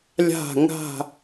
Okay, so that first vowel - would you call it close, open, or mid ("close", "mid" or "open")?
open